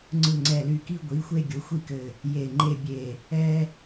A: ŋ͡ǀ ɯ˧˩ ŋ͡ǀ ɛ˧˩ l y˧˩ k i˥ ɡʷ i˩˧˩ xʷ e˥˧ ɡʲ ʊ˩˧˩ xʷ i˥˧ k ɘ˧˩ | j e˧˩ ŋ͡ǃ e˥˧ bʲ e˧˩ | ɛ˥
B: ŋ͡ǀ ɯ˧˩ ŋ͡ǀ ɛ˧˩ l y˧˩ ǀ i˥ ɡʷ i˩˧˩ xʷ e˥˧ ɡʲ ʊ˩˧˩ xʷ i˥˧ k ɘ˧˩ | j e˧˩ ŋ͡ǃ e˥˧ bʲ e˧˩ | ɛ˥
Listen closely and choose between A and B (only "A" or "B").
A